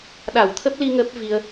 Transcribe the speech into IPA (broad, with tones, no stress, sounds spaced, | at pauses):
ɗ a˧˩ w t̪ʰ ə˦˥ p̚ l i˧ ŋ ə˦˥ p̚ v i˧ ə̯